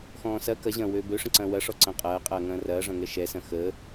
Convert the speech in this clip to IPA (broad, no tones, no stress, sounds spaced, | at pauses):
x ɔ̃ː s ɐ k ɐ ʑ ɐ̃ː w øː b ø ʂ ə̃ ǀ ɐ̃ː w ɐ ʂ ɔ ǀ ɐ̃ qʼ ɐː qʼ ɐː ŋ ɐ̃ː r ɐː ʐ ɐ̃ ŋ ɛ ʃ ɛ s ɐ̃ x ə